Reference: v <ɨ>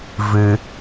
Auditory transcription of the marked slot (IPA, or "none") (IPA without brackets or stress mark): ɨ